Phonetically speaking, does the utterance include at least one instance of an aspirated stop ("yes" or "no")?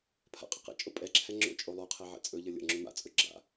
yes